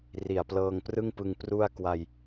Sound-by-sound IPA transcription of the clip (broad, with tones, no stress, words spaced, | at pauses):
ri˨˩a̯plɤː˧ŋprɯ˥˩ŋpɯ˧ŋ pru˥˩a̯ kwa˧j